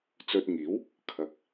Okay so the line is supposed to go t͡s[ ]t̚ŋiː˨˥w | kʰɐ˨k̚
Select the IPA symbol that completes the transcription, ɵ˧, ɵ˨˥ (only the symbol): ɵ˧